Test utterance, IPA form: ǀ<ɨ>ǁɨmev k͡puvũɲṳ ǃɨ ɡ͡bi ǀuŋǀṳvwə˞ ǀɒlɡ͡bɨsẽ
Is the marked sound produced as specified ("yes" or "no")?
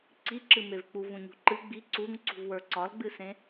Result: no